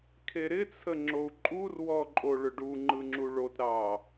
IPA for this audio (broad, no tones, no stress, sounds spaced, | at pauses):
kʰ e ɾ ɪ t͡sʰ ə ŋ͡ǁ o u̯ ǃʼ u r w ɔ ǃʼ o ɭ ʏ ɖ u ŋ͡ǃ ɯ ŋ͡ǁ u ɭ o t ɾ ɑ